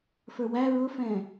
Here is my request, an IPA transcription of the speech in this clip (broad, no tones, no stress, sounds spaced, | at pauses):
f ə˞ w æ ɹ ʊ f ɛ̃